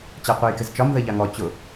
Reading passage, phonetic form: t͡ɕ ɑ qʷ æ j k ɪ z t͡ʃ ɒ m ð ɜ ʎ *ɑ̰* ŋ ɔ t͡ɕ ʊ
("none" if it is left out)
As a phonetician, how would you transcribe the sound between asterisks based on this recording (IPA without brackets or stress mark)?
ɑ